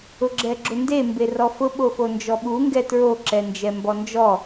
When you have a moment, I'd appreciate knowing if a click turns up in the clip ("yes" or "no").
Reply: yes